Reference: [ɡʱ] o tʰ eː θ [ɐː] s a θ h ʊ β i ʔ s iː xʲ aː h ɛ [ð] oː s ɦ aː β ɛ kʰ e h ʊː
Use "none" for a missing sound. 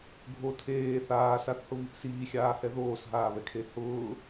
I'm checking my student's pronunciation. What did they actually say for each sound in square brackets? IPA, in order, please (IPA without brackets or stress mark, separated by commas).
ɡʱ, aː, ð